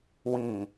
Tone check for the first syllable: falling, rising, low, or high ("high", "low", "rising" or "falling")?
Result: low